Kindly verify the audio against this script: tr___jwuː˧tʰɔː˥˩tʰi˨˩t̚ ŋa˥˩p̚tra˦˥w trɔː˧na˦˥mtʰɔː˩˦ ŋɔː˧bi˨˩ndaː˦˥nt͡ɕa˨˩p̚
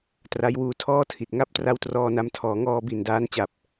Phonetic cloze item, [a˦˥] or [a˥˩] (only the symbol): a˦˥